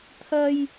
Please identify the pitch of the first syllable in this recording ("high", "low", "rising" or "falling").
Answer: low